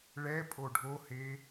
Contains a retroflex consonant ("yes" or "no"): yes